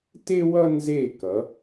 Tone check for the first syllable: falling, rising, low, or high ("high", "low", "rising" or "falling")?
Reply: high